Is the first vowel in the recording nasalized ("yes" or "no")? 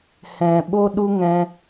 yes